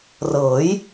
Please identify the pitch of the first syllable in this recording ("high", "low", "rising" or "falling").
rising